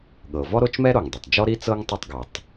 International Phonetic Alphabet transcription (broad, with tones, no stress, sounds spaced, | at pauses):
ɠ ɤ˩ v ɔ˥ ɾ o˥ t͡ʃ m ɛ˥ ɾ o˩ ŋ dˤ o˩ tˤ d͡ʒ ɔ˥ ɾ i˥ t͡s ɤ˥ ŋ tˤ o˥ tˤ ɡ ɤ˩ tˤ